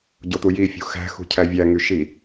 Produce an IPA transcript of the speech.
ɟ o t̪ u j i fʲ ṳ x æ̤ x ṳ cʰ æ vʲ æ ŋ y ʃ i

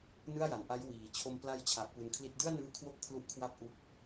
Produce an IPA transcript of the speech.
n ɯ˥˩ a̯ j a˩˦ n ʔ a˦˥ j w iː˩˦ t͡ɕʰ o˧ m p l a˦˥ j t͡ɕʰ a˨˩ ʔ p u˧ n kʰ l i˦˥ t̚ d ɯ˥˩ a̯ n ɯː˦˥ kʰ w o˦˥ k̚ pʰ l u˥˩ ʔ kʰ w a˥˩ p̚ ʔ u˦˥ k̚

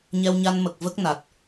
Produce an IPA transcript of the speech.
ɲ ɛ˧ w ɲ a˧ n m ə˨˩ k̚ v ə˦˥ k̚ n a˨˩ t̚

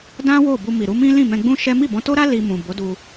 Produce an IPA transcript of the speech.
d ã˦ w o˦˨ b u˧ m i˨ ɾ u˨˦ m ĩ˦ l ĩ˦˨ m ɛ̃˧ ɡ͡b ũ˦ ʃ ɛ˦ m i˦˨ b ɔ̃˨˦ t o˦ ɾ a˦ l i˧ m ũ˨ b o˨˦ d u˧

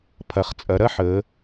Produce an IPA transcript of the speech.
pʰ ɐ˩˧ χ t͡sʼ ɐ˩˧ ɾ ɐ˥ ħ əː˩˧

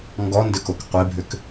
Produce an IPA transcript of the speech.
ŋ ɡ ɔ n d ʏ k o k qʷ e bʱ ʏ k

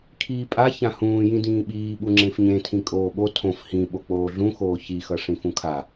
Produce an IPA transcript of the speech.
kʰ iː pʼ a ç ã h ũː j ĩ d ĩː ɓ iː ɓ u ŋ͡ǁ ẽ f ɲ ẽ tʰ ĩ kʼ oː ɓ o tʰ õ f h ĩ ɓ o k͡p oː ɮ ũ x oː ç i x ʌ ʂ ĩ f ũ kʰ a

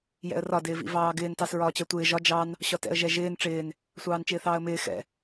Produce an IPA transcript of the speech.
j ɛ̰ ə̯ r ɒ d ɪː v ḭ v ɑː ɡ ɪː n t ɑ s ɹ ɒː t͡ɕ ɜ tʷ ɪː ʒ ɒ d͡ʒ ɑ n | ɕ ɒ t ɛ̰ ə̯ ʒ ɛ ʒ ɪː n ʈ͡ʂ ɪː n | sʷ ɑː n t͡ʃ ɪː θ ɑː ə̯ m ɪː x ɛ̰

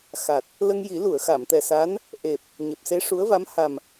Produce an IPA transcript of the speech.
x a˨˩ t̚ | l ə˧ ŋ j i˨˩˦ l u˨˩˨ ə̯ x a˨˩˨ m t̪ ɛ˨˩ s a˧˥ n | ʔ e˨˩ p̚ | ɲ e˨˩ p̚ s e˧˥ ʂ u˧˥ ə̯ v a˧˥ m h a˨˩ m

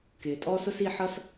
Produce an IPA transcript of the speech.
k ɪː˩ tʼ ɔː˥ s ʊ˥ s i˧ ħ ʌ˥ s

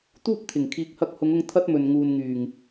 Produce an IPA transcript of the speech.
t̪ uː˥ p̚ t̪ʰ ɪ˨˩ ŋ kʰ iː˨˥ k̚ h ɐ˧ k̚ h ʊ˨˧ ŋ ʊ˧ ŋ t̪ʰ ɐ˥ t̚ m ɵ˨ n ŋ uː˨ n ŋ yː˨˩ ŋ

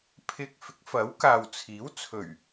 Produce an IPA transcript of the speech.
pʰ ɪ˧ k̚ f ɪ˨˥ k̚ f ɐ˨˥ w k aː˨ w t͡sʰ iː˨˥ w t͡sʰ ɵ˨˩ ɥ

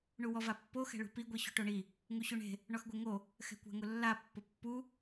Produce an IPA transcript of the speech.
ɳ u w ɔ v a pː o x ɛ̤ ɭ ṳ p i ɡʷ i ɕ ṳ ʈ o ɳ i | ŋ u ɕ u ɳ e̤ | ɳ ɔ x ɡʷ e ŋ o | x ɛ̤ kʷ a̤ ŋ ʊ lː a pː ʊ pː u

